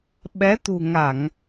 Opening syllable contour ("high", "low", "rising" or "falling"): rising